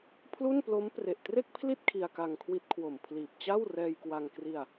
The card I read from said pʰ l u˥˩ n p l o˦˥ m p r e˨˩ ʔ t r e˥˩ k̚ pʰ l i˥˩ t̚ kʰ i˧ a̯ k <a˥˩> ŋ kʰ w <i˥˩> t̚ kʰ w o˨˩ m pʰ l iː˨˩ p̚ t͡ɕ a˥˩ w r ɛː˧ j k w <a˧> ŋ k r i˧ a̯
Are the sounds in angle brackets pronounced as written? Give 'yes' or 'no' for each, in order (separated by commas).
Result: no, no, yes